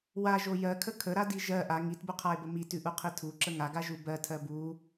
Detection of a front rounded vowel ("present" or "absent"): absent